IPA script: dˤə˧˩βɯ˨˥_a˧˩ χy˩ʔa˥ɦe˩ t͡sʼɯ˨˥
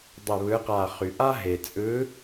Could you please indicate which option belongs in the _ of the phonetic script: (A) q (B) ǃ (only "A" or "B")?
A